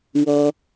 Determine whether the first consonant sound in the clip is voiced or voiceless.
voiced